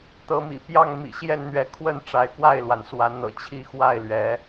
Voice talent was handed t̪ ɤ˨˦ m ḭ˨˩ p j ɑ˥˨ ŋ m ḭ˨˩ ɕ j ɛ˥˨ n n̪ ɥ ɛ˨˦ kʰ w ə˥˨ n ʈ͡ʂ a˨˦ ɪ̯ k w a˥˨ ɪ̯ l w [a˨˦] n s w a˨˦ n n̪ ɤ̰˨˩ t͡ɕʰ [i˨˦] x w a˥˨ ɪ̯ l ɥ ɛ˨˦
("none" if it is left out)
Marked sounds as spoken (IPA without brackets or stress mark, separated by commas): a˩, i˥˨